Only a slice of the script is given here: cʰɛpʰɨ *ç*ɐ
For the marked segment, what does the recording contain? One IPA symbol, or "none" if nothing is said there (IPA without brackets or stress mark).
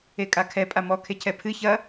ç